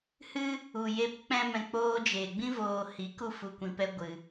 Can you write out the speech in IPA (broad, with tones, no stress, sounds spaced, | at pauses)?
h ɨ˦ | u˨ j e˧ p k͡p ɛ̃˦ m ɛ̃˧ k͡p oː˧ d͡ʒ eː˨ ɡ͡b ĩ˦ v oː˧ h i˨˦ k u˦ f u˧ kʷ ĩ˧ p ɛ˦ ɡʷ ɨ˧